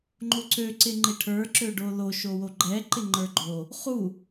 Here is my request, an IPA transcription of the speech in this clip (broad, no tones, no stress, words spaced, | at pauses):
ŋ͡ǃoǀø ǀɪŋ͡ǃɪʈʰə˞ ǁøɖolo ʃowoɡ͡ǃɛ ǃɪŋ͡ǃə˞ɡ͡ǃo | χu